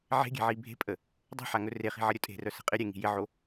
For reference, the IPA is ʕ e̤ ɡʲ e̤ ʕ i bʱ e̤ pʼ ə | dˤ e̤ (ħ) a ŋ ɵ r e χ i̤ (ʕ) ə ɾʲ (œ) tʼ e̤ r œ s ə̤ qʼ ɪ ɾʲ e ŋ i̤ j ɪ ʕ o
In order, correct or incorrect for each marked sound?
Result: correct, correct, incorrect

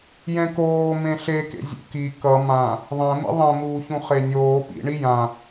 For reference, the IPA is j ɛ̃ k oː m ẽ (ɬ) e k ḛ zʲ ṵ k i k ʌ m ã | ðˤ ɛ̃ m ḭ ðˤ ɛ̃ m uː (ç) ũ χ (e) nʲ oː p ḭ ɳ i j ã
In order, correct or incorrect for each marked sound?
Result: correct, correct, correct

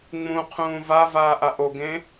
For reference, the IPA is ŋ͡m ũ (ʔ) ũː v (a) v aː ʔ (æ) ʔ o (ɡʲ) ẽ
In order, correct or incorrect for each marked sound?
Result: incorrect, correct, incorrect, incorrect

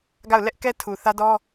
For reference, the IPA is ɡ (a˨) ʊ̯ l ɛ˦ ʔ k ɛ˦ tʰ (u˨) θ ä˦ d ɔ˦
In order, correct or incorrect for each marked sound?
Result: incorrect, correct

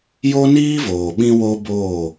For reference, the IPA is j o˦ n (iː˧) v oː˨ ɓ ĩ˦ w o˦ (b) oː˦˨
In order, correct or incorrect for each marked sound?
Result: incorrect, correct

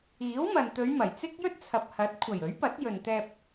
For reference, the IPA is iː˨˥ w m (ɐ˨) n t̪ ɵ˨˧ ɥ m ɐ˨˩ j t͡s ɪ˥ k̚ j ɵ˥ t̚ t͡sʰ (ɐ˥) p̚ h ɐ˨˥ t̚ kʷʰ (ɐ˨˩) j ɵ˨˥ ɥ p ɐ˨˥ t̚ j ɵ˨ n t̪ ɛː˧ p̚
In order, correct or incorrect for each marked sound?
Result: correct, incorrect, correct

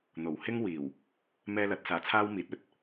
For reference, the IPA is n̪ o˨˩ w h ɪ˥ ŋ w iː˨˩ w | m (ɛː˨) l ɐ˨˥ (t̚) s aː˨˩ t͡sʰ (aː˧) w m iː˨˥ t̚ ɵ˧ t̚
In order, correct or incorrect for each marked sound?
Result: incorrect, correct, incorrect

